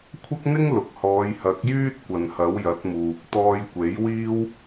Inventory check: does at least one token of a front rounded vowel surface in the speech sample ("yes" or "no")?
yes